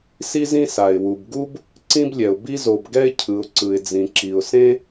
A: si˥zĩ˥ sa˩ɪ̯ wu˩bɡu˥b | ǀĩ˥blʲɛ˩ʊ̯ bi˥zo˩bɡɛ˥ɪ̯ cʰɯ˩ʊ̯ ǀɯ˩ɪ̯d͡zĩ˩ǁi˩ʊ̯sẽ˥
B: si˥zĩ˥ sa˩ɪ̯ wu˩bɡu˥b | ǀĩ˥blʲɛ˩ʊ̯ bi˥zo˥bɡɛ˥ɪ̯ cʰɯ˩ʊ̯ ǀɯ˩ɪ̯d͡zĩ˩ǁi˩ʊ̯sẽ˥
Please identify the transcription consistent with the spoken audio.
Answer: A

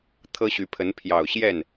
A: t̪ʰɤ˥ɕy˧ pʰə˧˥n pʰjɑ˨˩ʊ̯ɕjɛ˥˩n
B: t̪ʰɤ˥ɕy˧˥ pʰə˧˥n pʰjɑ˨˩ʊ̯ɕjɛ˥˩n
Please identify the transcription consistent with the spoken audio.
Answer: B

